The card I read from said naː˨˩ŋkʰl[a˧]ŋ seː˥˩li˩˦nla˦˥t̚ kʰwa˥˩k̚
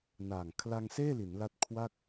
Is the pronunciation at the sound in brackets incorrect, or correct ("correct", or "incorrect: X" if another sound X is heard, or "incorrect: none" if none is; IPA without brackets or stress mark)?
correct